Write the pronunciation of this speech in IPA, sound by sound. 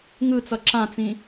ŋ ɯ t͡s ʌ ǁ ã t͡s ĩ

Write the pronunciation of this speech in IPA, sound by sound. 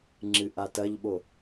ŋ͡ǁ ɨ ʔ a t ɐ ʎ ɓ o

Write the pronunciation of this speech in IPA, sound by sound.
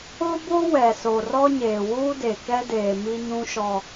o˦ b o˦ w ɛ˨ s o˨ r ɔ˦ ɲ eː˨ w uː˦ d e˨ k ɛ˦ d eː˨ m i˦ ɲ ũ˦ ʃ ɔ˦

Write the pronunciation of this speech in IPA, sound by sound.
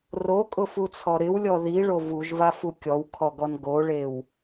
r o kʼ ʊ f u t͡sʰ ɔ ɾ ɪ w lʲ ɔ ð i ɭ o v u ʒ v a f u kʲ ɔ w kʰ ɔ ɡ ɔ n ɡ o ɭ e w

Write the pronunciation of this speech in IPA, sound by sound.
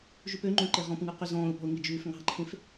ʒ ʉ p ø ŋ͡ǃ õ ǃ e ʁ ɔ̃ p ŋ ʉ q y z ɔ̃ː ʊ̯ p ɔ̤ ʊ̯ ŋ i d͡ʒ ʉː f ŋ ɑ̤ ǃʰ ẽ f

